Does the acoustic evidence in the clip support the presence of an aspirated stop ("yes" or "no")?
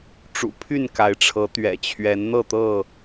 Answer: yes